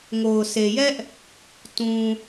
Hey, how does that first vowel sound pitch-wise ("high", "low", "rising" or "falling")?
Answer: low